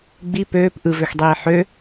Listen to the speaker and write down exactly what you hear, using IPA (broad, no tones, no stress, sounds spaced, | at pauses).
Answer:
ɡ͡b i p øː p ʔ ɯ v ø x dˤ iː ħ ø